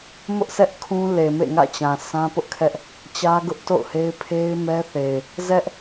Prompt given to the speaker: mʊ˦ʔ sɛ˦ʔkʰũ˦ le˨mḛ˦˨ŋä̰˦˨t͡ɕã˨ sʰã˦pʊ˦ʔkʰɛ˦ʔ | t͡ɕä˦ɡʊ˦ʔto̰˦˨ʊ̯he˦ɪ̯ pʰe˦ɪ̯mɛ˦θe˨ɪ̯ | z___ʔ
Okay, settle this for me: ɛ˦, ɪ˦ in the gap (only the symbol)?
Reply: ɛ˦